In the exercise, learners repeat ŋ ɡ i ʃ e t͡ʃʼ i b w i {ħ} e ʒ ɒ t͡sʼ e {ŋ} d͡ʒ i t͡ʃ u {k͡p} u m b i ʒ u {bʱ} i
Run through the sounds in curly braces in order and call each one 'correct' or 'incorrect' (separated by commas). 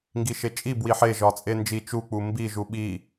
correct, incorrect, correct, incorrect